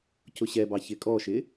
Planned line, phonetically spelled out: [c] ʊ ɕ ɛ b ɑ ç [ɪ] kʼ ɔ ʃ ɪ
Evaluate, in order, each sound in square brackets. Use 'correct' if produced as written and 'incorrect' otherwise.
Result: correct, correct

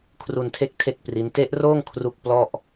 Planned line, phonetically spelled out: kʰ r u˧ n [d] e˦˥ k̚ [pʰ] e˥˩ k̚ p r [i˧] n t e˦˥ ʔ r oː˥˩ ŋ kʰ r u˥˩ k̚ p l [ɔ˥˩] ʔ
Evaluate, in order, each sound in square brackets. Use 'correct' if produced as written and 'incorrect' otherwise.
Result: incorrect: tʰ, incorrect: tʰ, incorrect: i˦˥, correct

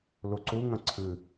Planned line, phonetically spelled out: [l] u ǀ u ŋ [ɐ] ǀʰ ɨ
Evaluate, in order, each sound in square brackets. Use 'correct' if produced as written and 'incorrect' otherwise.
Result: correct, incorrect: ɐ̃

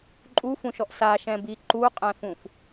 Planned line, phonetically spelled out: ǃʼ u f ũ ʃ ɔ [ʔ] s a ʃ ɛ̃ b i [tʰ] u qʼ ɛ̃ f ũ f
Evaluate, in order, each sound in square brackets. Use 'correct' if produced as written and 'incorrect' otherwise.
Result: correct, incorrect: ǃ

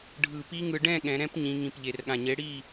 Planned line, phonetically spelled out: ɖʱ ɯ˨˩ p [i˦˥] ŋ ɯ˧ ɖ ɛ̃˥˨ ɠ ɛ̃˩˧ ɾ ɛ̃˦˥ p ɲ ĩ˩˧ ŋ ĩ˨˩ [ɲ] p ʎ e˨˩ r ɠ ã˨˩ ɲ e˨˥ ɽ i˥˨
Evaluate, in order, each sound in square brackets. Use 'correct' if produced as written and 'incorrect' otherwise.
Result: correct, incorrect: none

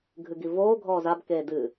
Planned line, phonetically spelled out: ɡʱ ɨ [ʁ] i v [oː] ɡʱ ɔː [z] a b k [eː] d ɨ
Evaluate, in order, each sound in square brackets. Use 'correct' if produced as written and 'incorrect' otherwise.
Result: incorrect: ɡ, correct, correct, correct

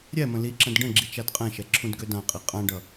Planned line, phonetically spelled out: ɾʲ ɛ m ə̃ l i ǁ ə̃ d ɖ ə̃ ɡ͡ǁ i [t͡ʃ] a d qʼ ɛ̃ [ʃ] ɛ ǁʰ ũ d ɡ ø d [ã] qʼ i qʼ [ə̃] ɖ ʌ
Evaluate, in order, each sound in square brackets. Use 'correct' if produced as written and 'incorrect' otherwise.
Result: correct, correct, correct, incorrect: ã

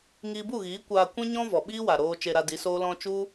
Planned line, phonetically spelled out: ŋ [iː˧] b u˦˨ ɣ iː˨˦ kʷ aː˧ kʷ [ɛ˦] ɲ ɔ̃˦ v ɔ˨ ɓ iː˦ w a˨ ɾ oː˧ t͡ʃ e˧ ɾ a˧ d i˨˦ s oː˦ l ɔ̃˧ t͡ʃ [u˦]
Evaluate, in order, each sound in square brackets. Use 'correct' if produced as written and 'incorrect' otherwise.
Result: correct, incorrect: ɛ̃˦, correct

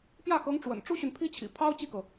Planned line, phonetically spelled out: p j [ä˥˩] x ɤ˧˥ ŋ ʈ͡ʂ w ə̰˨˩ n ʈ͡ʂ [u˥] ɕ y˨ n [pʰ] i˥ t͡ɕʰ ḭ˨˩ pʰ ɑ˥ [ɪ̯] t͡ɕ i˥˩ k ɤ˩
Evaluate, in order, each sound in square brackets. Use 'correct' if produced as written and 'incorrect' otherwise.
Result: correct, correct, correct, incorrect: ʊ̯

